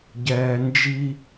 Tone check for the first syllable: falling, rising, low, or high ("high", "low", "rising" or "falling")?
low